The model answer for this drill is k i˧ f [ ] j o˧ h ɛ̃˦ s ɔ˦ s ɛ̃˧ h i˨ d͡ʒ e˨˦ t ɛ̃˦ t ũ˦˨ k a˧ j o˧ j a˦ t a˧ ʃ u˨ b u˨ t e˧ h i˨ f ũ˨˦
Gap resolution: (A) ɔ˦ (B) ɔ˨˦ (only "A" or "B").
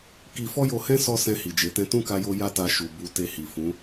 A